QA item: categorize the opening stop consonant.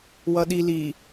implosive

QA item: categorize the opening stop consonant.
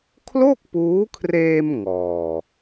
aspirated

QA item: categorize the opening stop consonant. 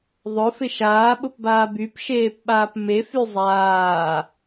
implosive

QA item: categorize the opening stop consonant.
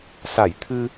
aspirated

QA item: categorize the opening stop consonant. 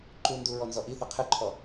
click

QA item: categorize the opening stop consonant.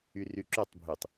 click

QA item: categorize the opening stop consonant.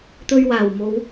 plain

